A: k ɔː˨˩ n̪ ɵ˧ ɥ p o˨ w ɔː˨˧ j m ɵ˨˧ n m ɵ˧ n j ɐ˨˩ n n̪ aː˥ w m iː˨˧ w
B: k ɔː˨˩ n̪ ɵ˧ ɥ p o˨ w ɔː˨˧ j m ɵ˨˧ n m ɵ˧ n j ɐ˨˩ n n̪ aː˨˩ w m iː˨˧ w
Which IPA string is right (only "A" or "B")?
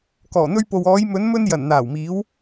B